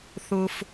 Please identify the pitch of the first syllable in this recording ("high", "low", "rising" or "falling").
low